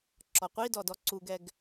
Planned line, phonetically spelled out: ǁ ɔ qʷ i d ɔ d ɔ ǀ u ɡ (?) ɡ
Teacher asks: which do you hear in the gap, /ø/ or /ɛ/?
ɛ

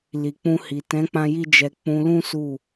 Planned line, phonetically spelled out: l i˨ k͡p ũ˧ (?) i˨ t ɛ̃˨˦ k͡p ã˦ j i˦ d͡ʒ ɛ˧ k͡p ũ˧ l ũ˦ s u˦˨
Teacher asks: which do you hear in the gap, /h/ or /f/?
h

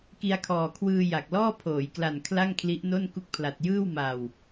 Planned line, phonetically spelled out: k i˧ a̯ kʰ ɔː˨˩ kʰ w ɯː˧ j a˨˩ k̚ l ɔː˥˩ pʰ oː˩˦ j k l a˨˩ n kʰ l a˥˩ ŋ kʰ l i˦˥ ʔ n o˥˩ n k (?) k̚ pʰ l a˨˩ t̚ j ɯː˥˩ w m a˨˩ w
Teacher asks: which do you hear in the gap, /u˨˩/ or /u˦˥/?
u˦˥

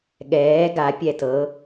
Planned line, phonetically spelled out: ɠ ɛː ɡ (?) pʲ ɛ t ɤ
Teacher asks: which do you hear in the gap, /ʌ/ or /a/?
a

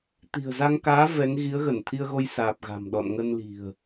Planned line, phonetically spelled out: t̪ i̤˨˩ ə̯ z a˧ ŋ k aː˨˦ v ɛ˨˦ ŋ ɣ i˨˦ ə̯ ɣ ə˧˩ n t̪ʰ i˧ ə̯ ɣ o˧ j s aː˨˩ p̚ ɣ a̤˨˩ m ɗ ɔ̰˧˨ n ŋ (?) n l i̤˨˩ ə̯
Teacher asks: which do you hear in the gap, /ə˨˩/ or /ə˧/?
ə˧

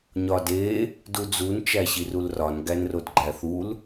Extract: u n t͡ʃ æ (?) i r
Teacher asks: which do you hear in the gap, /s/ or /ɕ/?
ɕ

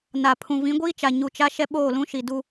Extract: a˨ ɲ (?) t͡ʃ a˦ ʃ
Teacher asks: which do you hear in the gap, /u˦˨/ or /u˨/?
u˨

